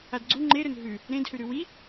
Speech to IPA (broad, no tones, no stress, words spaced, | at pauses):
adɡ͡ǀu ŋ͡ǃeɾɵn ɦʉ | ɾẽdhʉɾʉ wi